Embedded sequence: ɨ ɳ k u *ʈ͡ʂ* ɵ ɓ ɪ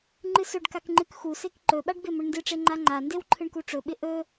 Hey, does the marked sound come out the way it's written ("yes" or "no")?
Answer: yes